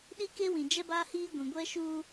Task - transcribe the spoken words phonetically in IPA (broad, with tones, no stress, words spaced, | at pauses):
ɗi˦ke˦wĩ˨ d͡ʒɛ˦baː˦hiː˦ ɡʷĩ˨ɡʷɛ˦ʃuː˦